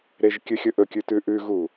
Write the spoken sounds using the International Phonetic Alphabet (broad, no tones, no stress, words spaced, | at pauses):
ɾeʒkʲɨxʲɵ ʔɵkʲʉ tʉʔʉɣu